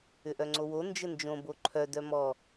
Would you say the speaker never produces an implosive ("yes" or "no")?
yes